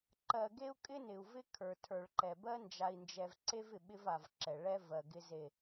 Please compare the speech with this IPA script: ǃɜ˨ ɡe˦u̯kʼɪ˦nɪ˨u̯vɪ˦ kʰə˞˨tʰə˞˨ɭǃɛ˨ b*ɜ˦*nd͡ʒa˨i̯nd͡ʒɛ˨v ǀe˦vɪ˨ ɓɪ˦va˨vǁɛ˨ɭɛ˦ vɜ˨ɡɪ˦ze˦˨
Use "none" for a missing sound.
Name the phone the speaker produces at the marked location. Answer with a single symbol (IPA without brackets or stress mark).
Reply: ɜ˦